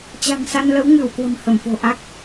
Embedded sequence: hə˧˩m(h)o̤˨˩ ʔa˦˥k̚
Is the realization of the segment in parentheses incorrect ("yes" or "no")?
yes